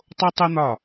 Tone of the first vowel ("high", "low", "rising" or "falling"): high